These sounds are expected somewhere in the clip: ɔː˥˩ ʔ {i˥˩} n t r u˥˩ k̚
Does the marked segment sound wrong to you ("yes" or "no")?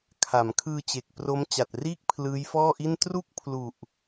no